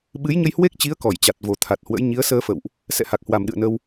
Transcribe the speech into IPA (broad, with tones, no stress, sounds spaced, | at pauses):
ɓ ɨ˨˦ j ɲ ə˧ j h w e˦˥ k̚ t͡ɕ i˨˦ ə̯ k ɔ˧˩ j t͡ɕ a˨˩ t̚ v o˨˩ t̪ʰ a˨˩ t̚ h w ə̰˧˥ j ɲ i˨˦ ə̯ s əː˧ f ə̰˧˨ w ʔ | s ɛ̰˧˨ h a˨˩ k̚ h w a˨˩ m ɗ ɨ̰˧˨ ə̯ n ə˧ w